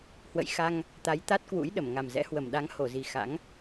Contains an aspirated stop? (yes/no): no